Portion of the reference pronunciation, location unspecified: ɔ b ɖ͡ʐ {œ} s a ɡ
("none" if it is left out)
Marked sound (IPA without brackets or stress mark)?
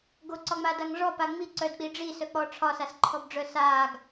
œ